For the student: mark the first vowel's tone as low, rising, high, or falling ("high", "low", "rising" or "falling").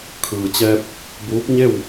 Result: low